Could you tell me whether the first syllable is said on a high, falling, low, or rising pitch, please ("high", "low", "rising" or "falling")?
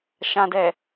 low